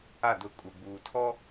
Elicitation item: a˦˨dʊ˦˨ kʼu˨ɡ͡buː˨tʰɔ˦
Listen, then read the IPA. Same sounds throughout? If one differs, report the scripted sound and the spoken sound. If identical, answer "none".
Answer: none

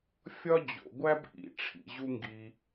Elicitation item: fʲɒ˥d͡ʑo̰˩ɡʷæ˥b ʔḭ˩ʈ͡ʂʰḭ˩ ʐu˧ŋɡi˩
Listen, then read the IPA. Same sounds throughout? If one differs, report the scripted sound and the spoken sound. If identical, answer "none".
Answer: ʐ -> ʑ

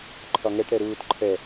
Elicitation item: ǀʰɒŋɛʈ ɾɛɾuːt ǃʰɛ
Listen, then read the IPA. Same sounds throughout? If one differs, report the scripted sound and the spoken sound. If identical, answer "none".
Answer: ǀʰ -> ǃʰ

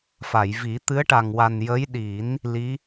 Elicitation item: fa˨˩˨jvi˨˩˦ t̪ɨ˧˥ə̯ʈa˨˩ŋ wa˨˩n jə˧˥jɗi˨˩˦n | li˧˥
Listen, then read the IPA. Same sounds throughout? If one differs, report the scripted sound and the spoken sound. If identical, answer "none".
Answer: none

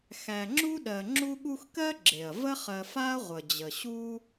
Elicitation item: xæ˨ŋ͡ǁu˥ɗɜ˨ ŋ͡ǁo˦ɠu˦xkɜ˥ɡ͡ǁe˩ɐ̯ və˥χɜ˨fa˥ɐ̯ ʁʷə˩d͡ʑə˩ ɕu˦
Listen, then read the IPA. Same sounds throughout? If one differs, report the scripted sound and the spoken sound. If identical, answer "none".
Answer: o˦ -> u˦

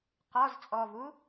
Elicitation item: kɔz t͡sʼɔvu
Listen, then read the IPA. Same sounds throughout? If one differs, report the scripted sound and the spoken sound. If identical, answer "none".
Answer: k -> q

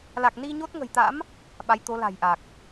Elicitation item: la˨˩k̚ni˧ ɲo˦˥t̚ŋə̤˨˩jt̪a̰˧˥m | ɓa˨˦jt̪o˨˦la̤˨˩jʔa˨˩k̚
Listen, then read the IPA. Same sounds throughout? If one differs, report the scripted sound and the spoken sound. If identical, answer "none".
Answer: none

